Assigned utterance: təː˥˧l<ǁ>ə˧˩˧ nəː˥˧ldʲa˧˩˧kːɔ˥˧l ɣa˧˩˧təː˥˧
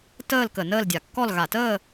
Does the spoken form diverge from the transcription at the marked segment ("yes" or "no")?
yes